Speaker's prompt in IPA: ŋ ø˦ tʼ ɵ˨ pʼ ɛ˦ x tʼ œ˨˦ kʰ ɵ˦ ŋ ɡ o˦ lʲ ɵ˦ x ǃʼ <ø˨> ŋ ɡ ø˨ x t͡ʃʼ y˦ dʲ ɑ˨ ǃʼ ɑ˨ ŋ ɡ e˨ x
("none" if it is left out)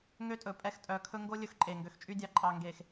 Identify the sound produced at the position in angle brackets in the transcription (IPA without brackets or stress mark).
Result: e˨